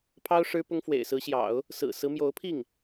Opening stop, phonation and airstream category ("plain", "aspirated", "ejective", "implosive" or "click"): aspirated